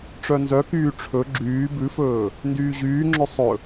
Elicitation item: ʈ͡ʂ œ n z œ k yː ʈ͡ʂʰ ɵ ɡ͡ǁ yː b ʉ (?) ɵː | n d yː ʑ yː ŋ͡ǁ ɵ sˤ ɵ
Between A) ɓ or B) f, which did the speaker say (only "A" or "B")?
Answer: B